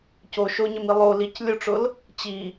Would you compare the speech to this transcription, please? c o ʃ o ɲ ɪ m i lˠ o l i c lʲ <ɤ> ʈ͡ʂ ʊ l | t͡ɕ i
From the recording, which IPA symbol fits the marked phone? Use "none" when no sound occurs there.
o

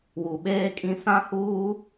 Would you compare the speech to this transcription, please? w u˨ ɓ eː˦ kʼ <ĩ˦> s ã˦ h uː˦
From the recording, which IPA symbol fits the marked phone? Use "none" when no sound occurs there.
ĩ˦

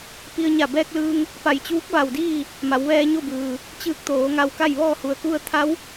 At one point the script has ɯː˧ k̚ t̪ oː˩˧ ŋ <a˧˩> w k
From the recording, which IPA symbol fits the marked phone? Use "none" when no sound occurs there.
a˧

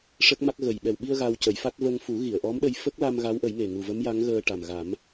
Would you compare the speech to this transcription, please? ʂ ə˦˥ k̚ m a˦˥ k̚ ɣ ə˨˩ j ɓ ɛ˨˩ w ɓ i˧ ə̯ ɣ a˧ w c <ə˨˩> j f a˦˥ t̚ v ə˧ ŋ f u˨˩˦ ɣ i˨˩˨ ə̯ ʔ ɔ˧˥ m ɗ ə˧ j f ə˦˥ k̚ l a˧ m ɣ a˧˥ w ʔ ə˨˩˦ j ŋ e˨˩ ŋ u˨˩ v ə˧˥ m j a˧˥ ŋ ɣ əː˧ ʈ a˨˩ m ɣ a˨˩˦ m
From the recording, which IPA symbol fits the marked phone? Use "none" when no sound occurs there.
ə˨˩˦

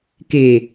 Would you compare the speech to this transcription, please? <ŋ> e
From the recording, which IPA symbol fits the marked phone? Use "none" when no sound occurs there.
k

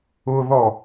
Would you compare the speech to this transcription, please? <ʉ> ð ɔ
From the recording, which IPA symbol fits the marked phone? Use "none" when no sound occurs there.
ʊ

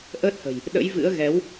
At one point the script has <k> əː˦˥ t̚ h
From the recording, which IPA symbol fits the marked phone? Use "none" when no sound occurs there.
ʔ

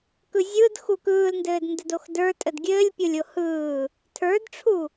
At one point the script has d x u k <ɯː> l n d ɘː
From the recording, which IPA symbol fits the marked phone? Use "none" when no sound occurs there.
ɯː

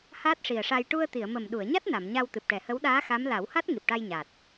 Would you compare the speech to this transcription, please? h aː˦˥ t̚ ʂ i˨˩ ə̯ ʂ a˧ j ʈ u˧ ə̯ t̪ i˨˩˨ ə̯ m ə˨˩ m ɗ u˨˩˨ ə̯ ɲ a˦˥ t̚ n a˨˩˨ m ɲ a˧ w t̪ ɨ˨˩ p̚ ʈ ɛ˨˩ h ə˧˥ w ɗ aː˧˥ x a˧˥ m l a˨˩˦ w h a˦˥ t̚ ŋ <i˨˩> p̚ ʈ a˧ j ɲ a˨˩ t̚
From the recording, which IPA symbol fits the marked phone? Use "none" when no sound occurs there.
i˨˩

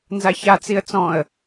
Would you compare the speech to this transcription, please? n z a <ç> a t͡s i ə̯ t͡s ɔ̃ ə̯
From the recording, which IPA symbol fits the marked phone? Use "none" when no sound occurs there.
ç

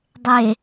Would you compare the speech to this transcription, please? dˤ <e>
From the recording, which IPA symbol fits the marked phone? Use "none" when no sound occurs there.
e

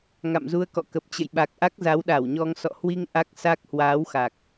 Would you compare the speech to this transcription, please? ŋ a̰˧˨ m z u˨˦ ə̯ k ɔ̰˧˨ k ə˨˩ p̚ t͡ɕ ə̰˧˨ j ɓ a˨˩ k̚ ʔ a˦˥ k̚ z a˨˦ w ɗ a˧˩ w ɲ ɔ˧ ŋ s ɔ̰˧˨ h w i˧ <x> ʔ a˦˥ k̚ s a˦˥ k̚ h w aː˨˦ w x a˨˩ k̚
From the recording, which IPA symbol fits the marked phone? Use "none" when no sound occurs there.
ŋ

